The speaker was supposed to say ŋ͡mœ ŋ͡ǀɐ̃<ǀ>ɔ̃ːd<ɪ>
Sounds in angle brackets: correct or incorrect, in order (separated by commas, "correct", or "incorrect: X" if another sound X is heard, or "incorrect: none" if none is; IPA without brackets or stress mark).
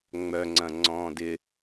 incorrect: ŋ͡ǀ, correct